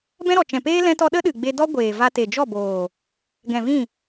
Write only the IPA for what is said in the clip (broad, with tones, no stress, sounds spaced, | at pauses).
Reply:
b ɛ̃˦ ɾ ɔ˨ t͡ʃ ɛ̃˨ p eː˦ l ɛ̃˦ t ɔ˦ ɗ ə˦ ɗ ɨ˨ ɡ͡b e˧ d ɔ˦ ɡʷ eː˨ v a˧ t e˨ d͡ʒ ɔ˦˨ b oː˨ | ɡ ɛ̃˨ v ĩ˦˨